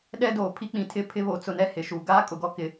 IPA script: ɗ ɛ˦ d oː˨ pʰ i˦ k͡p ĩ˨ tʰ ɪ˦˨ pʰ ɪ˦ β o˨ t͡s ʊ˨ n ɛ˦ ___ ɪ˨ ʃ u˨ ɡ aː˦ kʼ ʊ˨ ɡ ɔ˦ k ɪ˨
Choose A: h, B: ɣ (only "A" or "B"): A